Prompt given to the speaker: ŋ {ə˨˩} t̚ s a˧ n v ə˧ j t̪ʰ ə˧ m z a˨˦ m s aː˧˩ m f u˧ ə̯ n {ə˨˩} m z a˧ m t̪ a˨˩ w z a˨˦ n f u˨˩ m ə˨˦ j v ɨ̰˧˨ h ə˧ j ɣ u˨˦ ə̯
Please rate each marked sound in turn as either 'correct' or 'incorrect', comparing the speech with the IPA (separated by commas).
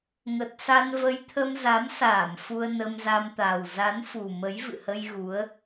correct, incorrect